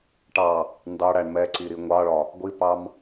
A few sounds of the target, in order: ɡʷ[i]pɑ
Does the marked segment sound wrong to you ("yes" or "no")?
no